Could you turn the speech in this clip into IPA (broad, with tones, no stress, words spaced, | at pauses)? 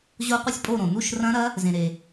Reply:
ʑo˦˥qʷɨ˦˥sʲpʼo˥˨ɾõ˩ nu˥˨ʃ rɐ̃˦˥ ɾɐ˦˥ | zẽ˩ɾe˩